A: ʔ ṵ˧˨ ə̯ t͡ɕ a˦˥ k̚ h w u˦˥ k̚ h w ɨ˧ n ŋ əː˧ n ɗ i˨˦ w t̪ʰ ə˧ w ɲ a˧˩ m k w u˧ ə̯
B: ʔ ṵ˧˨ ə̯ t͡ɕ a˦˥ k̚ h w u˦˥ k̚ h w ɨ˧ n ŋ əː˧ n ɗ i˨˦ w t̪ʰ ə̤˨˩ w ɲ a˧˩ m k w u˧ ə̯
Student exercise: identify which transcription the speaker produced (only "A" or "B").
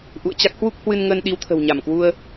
B